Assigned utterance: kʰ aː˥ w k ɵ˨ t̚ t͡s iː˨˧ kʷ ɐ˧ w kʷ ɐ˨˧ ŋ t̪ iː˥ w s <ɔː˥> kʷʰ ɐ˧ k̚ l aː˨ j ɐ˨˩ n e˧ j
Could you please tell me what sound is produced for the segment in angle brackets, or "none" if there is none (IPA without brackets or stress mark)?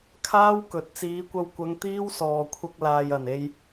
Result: ɔː˨